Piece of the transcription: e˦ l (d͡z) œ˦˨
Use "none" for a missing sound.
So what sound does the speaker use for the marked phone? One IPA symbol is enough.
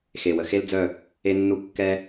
d͡z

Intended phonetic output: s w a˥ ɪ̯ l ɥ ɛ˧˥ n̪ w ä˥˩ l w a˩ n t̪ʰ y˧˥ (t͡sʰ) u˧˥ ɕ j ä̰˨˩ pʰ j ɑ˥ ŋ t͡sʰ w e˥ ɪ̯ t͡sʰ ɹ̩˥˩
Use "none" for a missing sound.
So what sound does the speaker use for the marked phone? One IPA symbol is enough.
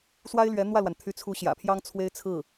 t͡sʰ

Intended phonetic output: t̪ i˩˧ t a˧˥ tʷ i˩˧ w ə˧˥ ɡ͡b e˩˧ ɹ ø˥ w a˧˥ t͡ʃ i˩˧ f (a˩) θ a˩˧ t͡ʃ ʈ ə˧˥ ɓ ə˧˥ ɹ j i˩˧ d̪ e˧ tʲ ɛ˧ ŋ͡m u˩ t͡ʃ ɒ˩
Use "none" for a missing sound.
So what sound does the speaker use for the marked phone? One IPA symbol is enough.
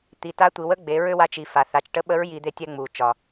a˩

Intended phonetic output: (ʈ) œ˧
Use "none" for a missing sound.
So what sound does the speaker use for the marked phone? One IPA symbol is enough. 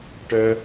ʈ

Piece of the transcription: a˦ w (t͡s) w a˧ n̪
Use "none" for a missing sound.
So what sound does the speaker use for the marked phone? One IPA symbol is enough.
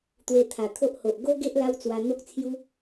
t͡s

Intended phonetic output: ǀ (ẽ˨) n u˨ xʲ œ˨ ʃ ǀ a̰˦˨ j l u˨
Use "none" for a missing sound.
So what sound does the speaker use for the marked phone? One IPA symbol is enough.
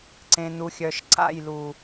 ẽ˨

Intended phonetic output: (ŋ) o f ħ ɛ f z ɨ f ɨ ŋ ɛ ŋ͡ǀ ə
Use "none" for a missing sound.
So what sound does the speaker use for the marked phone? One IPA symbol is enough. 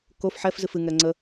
k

